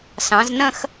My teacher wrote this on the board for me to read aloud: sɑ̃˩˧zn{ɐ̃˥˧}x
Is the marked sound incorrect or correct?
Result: correct